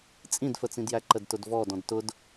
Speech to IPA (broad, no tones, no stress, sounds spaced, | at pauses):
t͡sʼ ĩ d f ə t͡s ĩ d j æ ǃ ə d t ʊ d v ɔ d ɔ̃ d t ʊ d